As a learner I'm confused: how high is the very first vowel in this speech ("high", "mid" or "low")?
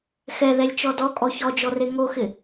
mid